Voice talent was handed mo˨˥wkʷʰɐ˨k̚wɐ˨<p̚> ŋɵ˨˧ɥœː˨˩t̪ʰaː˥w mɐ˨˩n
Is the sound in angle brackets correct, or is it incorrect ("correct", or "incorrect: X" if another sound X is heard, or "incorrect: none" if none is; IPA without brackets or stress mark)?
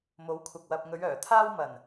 correct